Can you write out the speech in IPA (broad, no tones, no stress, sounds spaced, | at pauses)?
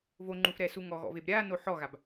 v o ŋ͡ǃ u f ɾ ɛ s u ŋ ɔ ɣ ɔ̰ v e b ɾʲ a n o ħ ɔ ɣ a b